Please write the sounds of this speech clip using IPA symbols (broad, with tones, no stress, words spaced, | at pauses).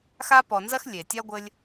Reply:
xa˦pɔ˨nzɐ˥x lʲe˩tʲa˥ɡʷɘ˦lʲ